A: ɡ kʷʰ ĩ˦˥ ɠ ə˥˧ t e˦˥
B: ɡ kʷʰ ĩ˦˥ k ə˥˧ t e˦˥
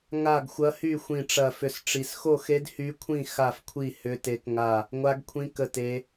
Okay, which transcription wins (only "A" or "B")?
B